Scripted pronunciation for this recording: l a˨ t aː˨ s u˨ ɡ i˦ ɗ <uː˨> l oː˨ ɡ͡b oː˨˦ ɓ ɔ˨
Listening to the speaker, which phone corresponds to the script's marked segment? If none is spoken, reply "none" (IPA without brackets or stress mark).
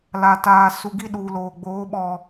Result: uː˨